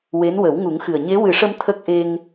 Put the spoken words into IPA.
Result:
w e˧˥ n w ə˨˩˦ w ŋ u˨˩˦ ŋ x ɨ˨˩ ə̯ ɲ e˧˥ w ɨ˨˩˦ ʂ ə˧ m t̪ʰ ə˦˥ k̚ ʔ e˧ ŋ

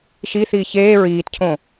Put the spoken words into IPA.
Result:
ʃ i θ iː ç eː ɹ iː t cʰ õ

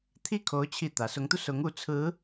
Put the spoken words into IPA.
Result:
t̪ʰ i˥˩ kʰ o˧˥ ʊ̯ t͡ɕʰ i˥˩ t̪ ä˧˥ s ʊ˧˥ ŋ t̪ u˧ s ʊ˧˥ ŋ u˧˥ t͡sʰ ɹ̩˧˥

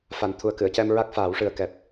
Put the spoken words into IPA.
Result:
f a˨˩˨ n t̪ʰ u˨˩ ə̯ k ɨ˨˩˨ ə̯ c ɛ˧ m ɹ a˦˥ k̚ f aː˨˩˦ w ʂ ɨ˨˩ ə̯ k ɛ˨˩ p̚

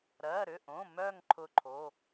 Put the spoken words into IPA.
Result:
ɾ ɜ˩˧˩ ɾ ʏ˩˧˩ ʔ õ˩˧˩ m œ˧˩ ŋ ǃʰ ʊ˧˩ ǃʰ o˩˧˩

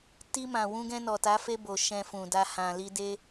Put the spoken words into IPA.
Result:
t i˧ m ã˨ w ũ˧ ɡ ɛ̃˧ n ɔ˨ t a˨˦ f e˧ b o˨ ʃ ɛ̃˧ f ũ˨ d a˧ h ã˨ l i˧ d e˦

